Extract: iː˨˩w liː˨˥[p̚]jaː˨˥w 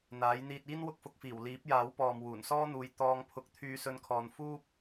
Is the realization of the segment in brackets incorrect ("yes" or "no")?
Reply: no